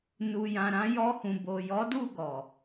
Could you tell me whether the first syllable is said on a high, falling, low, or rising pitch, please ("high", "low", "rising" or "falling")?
low